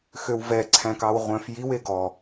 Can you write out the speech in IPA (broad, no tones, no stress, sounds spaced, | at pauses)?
x ø w v ɛ ǀʰ æ̃ k ɑ w ʁʷ œ̃ f j i w e ɡ ɔ